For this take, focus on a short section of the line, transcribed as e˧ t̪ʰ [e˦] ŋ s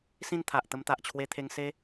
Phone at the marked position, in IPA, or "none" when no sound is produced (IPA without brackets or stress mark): e˧